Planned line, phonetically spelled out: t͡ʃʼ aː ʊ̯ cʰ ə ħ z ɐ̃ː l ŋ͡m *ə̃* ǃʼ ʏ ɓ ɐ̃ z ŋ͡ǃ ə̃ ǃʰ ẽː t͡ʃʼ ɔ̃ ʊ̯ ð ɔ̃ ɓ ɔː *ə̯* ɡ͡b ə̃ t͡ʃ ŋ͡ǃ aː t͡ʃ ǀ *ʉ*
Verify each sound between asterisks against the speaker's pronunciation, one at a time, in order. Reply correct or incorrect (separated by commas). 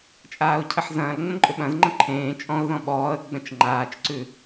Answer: correct, correct, correct